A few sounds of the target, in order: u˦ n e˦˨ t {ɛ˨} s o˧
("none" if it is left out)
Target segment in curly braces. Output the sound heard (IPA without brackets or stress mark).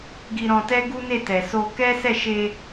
ɛ˨